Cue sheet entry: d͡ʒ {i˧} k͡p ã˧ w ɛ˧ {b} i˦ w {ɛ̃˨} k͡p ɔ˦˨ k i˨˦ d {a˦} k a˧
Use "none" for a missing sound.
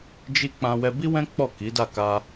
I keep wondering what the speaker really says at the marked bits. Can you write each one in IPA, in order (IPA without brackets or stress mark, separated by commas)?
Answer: i˦, b, ɛ̃˦, a˦˨